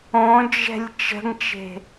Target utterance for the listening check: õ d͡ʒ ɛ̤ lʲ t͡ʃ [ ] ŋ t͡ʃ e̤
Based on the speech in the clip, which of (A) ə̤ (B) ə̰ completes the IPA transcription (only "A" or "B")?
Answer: A